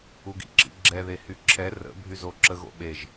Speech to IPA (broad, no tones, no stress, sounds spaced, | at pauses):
u ɡ ḭ ǁ ḭ ɡ͡ǁ ɛ ð e h y ǁʰ ɛ r ə̰ bʱ y z o ǁ ə ɣ o̰ ɓ e ʒ